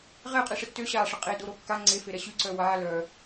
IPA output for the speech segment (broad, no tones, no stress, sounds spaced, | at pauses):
ʁ ɛ qʼ i ʂ ə tː ø ɕ aː ʂ ə qʼ e d o ɾ o kː a ŋ͡ǀ e f e ɾ ɛ ɕ y ǀ œ w aː l œ